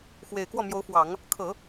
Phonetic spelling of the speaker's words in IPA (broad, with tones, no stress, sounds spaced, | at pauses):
x w e˨˩ ɪ̯ k w ɔ˥˩ m j o˧˥ ʊ̯ f w ɑ˨˩˦ ŋ | kʰ ɤ˨˩˦